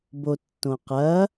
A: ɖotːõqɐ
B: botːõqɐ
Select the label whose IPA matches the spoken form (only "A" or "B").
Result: B